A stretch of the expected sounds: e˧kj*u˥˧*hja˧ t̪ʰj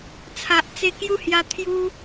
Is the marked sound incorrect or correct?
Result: correct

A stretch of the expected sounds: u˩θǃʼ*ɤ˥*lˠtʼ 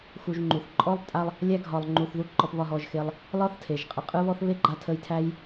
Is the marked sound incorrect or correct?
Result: incorrect: ɔ˥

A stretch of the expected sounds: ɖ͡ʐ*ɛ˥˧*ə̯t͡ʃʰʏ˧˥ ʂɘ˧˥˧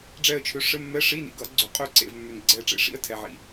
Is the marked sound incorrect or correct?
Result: correct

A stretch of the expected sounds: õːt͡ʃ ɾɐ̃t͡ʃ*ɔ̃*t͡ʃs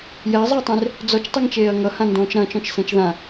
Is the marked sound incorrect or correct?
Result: correct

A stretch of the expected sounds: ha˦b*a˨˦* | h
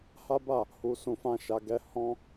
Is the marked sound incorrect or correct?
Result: incorrect: a˦˨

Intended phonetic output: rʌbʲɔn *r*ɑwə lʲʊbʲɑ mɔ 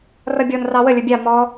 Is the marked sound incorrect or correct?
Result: correct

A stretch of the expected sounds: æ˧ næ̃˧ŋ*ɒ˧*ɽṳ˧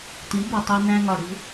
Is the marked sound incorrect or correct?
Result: incorrect: ɒ˨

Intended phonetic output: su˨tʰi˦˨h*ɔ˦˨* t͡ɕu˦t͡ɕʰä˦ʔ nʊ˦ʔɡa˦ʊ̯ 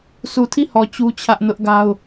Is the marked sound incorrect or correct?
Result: incorrect: ɔ˨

